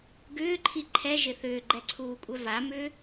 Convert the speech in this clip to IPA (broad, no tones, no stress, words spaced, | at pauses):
ɡʏːǃʰi ǃʰɛʒɪ θʏːɡ͡ǃɛǀʰuːkʷʼœ vamʏː